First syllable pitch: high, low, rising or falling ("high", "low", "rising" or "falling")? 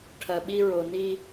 low